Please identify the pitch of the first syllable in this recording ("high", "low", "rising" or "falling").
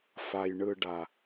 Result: low